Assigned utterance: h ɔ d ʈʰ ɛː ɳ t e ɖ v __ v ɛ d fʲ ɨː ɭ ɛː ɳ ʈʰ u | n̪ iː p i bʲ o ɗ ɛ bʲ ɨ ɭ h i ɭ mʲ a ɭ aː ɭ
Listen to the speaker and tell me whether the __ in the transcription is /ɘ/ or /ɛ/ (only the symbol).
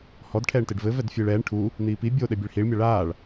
ɘ